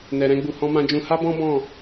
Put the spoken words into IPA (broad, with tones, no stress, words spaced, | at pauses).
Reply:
nɛ˨ɾɛ̃˧ɡ͡bu˨ hɔ̃˧mã˧d͡ʒũ˧ ha˦bɔ̃˦ bɔ̃˦˨